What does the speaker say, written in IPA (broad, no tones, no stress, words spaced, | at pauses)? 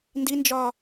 ndind͡ʒɒ